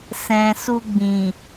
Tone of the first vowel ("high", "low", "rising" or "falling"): low